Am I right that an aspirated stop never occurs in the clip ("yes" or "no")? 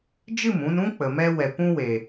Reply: yes